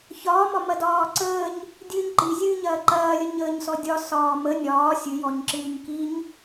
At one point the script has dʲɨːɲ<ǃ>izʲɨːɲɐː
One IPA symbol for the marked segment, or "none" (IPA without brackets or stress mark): ǃ